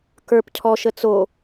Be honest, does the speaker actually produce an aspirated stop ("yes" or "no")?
yes